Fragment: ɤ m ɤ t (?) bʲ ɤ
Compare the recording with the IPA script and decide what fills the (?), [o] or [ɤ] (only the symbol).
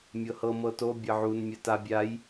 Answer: o